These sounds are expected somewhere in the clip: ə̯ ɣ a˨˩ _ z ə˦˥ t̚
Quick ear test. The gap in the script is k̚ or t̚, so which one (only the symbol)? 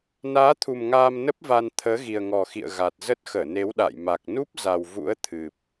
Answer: t̚